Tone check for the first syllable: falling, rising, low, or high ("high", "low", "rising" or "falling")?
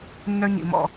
high